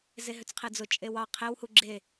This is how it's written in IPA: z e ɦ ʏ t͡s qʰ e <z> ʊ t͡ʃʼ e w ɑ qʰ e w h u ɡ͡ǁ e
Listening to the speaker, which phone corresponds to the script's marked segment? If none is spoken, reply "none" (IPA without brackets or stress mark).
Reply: d͡z